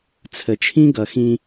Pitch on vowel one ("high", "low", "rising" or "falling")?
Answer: low